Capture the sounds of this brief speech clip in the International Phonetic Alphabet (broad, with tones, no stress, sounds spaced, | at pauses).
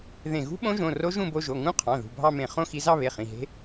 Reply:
ð ẽ˧˩ ɣ ṳ˦˥ ɓ õ˦˥ ʒ õ˩˧˩ r o˦˥ ʒ ũ˥˧ b o˧ ʒ o˩˧˩ ŋ ũ˦˥ qʰ ɑ̃˩˧˩ ð ṳ˩˧˩ bʱ ɑ˥˧ m ẽ˧˩ χ õ˥˧ x i˧ z ɑ˥˧ β e˩˧˩ χ ĩ˩˧˩ ɦ e̤˦˥